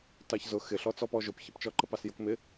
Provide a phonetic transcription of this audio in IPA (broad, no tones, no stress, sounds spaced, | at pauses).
t ɑ ç z ʊ x ɪ ɬ ɔ t͡s ɔ p ɔ ʒ ʊ p ç ə p t͡ʃ ɔ ǃ ə p ɑ s j ʊ k m ɪ